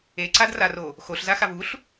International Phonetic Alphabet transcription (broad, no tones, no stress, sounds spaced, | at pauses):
e ǀ a d r a r o | x o ɬ z a x a v u ɬ